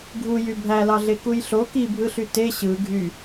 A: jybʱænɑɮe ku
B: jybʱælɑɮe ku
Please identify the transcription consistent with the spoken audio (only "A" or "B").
B